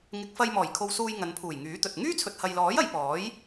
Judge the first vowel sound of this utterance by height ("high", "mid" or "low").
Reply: high